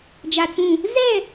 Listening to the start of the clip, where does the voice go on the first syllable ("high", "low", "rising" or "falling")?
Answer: low